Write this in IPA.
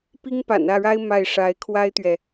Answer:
p i˥ ŋ p a̰˨˩ n ä˥˩ ɻ a˥ ɪ̯ m a˥˩ ɪ̯ ʂ a˧˥ ɪ̯ kʰ w a˥ ɪ̯ t̪ ɥ ɛ˨

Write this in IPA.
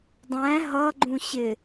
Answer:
dˤ æ̃ ɦ ʌ ɡ͡ǃ ũ ɕ ɪ

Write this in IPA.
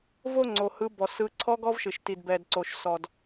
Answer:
v o˥˧ ŋ͡ǀ o˩ h ɯ˨˦ b ɔ˩ s ɯ˨˦ ǀʰ ɔ˦˥ ɡ ɔ˦˥ v ʃ ɨ˩ ʃ t i˩ d b ɛ˩ d ǀ o˩ ʃ s ɔ˩ d

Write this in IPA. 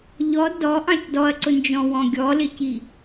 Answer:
ʎ ɔ d ɔ ʔ ɑ̃ c d ɔ ɐ̯ ǀ ʊ n d͡ʒ ɔ̃ w ɔ̃ ɡʲ ɔ l ɪ c i

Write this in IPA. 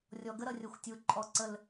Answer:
rʲ ɔ˨ ɡ ə˦ ɾ ʌ˨ rʲ ʌ˨ xʷ tʲ u˨ ǃʼ ɔ˦˨ ǀ ə˦ l

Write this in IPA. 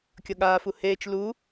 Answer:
kʲ ʌ ɠ aː f u h eː t͡ʃ l u

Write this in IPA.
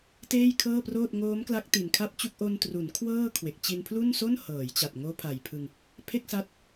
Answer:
t eː˥˩ j kʰ ɤː˥˩ p r oː˥˩ t̚ ŋ oː˦˥ m k l a˦˥ k̚ t i˨˩ n kʰ a˥˩ p̚ t͡ɕ u˥˩ k̚ ʔ o˧ n t r u˩˦ n kʰ w ɤː˥˩ kʰ w e˨˩ k̚ t͡ɕ i˧ n pʰ l u˥˩ n s o˥˩ n h ɤː˩˦ j t͡ɕ a˨˩ t̚ ŋ oː˦˥ pʰ a˨˩ j pʰ ɯ˧ ŋ | pʰ e˥˩ k̚ s a˦˥ t̚

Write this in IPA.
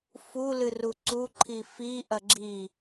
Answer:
f u l ɨ r u ǀ u ǃʰ i f i ʔ ɐ ɡ͡ǁ i

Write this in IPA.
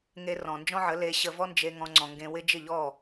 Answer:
ŋ e˧ r ɔ̃˨ n d͡ʒ ɔ̃˦ ʕ ə˨˦ l e˧ ɕ ə˧ v ɔ˦ n d͡ʒ e˧ ŋ ɔ̃˧ ŋ͡ǀ ɔ̃˨ ŋ ɡ ẽ˧ w ɪ˦ d͡ʒ ɪ˦˨ ʎ ɔ˦˨

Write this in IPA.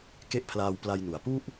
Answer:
k e˥˩ ʔ pʰ l aː˧ w p l a˧ j n u˩˦ a̯ p u˥˩ ʔ

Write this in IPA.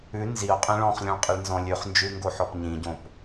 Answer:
ʉ n z i o̯ qʼ ĩ ɭ ɔ̃ χ lʲ ɔ̃ ɭ qʼ i ɭ n z ɔ̃ lʲ ʉ χ n d͡ʒ ʉ ŋ ɡ o ħ ɔ p ɲ ĩ ɟ õ p

